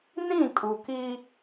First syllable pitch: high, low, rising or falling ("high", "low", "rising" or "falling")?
falling